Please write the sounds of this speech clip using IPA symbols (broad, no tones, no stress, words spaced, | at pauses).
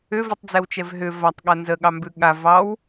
ʏvitˤd͡zɛwt͡ʃɛv ɦʏ vatˤɠa nzəɠɑmbʉ ɠa vɑw